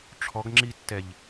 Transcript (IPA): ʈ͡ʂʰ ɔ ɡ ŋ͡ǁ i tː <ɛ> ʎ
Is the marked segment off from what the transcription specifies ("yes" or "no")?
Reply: no